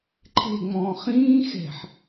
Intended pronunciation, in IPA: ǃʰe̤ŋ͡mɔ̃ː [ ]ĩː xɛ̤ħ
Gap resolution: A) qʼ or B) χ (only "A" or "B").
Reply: B